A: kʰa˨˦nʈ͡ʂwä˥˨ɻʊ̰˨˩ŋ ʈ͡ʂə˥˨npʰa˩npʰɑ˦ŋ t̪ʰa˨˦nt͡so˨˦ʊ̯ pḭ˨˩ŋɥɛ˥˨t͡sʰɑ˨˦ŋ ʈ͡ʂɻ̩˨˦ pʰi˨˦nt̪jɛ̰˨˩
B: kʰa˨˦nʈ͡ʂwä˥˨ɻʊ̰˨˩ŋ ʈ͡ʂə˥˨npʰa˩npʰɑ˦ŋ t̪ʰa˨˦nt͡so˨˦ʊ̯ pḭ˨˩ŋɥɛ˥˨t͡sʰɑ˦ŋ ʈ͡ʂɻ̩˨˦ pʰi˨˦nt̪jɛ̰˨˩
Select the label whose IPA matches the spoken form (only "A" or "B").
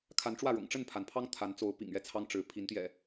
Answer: B